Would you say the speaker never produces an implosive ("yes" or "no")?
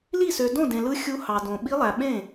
no